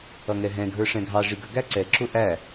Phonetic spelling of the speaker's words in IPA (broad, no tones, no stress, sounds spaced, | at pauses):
ʌ ŋ ɛ ɦ ɛ̃ ɡʱ ə˞ ʂ ɛ̃ ɡʱ ɑ ʐ i ɡ ə ɡ æ ǀ ɛ ǁ ʊ ʔ æ